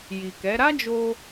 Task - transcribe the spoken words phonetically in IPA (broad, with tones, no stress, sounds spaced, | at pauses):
j i˨ k ɛ˨˦ ɾ a˦ d͡ʒ o˧